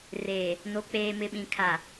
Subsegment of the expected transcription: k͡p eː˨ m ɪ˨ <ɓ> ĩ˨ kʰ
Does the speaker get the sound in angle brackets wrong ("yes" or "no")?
no